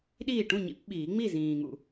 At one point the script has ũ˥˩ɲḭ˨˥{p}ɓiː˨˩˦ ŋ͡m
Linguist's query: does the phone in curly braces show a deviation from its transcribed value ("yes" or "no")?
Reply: no